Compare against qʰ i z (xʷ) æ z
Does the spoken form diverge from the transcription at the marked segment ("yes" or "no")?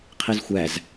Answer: no